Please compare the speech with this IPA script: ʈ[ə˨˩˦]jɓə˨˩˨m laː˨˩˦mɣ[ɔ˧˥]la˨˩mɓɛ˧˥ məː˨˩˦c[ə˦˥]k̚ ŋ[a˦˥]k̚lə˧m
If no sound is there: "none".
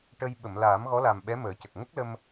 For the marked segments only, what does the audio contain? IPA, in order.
ə˧, ɔ˧˥, ə˨˩, ə˦˥

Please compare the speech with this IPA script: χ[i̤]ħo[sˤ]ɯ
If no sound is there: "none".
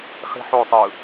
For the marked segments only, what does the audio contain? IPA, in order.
i̤, sˤ

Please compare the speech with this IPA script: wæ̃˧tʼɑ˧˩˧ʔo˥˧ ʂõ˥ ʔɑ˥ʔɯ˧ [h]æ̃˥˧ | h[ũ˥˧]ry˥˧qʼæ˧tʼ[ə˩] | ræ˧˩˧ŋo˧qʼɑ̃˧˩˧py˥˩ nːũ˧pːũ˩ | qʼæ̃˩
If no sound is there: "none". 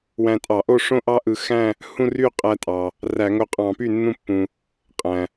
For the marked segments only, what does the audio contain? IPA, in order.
x, ũ˥˧, ɑ˩

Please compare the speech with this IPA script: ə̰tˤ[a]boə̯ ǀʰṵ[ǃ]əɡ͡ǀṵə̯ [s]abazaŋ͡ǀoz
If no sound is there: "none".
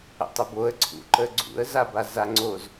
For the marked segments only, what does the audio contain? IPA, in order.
ə, ǃ, z

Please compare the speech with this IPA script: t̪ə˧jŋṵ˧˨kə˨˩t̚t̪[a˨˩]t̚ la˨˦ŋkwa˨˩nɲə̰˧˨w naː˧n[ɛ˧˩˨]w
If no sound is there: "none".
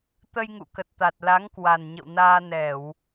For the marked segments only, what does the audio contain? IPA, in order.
a˨˩, ɛ˧˩˨

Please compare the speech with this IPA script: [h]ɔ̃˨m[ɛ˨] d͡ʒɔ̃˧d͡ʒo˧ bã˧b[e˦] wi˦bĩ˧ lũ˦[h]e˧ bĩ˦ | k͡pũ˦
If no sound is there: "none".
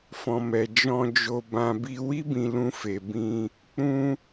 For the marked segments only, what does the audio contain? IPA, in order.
f, ɛ˨, i˦, f

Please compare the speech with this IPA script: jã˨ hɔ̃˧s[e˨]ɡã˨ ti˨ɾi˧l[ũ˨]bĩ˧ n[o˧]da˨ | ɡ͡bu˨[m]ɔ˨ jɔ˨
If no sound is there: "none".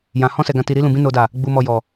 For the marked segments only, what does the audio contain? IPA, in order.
ɛ˨, ũ˨, o˨, m

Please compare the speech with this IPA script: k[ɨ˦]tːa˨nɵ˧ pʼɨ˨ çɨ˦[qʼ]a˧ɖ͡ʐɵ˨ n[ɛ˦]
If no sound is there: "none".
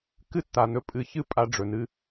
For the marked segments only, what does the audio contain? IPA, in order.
ɨ˦, pʼ, ɨ˦

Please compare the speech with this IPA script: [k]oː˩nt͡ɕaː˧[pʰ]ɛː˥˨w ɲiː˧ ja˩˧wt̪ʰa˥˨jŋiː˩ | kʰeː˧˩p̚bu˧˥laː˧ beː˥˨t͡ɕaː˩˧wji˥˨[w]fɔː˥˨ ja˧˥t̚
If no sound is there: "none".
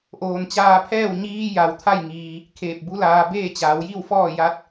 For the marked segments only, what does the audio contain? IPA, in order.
ʔ, pʰ, w

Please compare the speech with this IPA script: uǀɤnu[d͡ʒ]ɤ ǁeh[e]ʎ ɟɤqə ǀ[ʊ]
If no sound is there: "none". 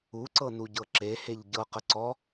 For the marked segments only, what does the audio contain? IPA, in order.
ɟ, e, ɔ

